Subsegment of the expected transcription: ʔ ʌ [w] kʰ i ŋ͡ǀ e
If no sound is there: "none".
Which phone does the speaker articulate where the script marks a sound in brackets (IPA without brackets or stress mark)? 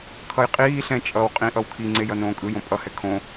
w